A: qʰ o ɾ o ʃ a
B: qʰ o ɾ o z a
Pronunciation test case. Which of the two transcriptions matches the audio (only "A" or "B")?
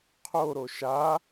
A